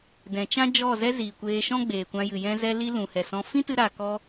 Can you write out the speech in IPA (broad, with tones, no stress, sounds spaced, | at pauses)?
d ɛ̃˨ t͡ʃ ã˦ d͡ʒ ɔ˦˨ z ɛ˦ z i˨ kʷ eː˧ ʃ ɔ̃˦ ɡ͡b eː˨ kʷ ã˧ j ɨ˨ j ɛ̃˧ z ɛ˧ l i˧ l ũ˨ h ɛ˨ s ɔ̃˧ f ĩ˦ t ɨ˧ ɾ a˨ k ɔ˧